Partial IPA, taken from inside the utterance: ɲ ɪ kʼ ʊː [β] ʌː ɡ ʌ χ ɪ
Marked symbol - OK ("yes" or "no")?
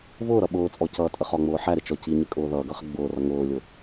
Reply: no